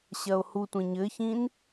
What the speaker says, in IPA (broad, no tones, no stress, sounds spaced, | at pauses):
ɕ ɐ o̯ h u tʷ ĩ ɲ ɘ ç ĩ n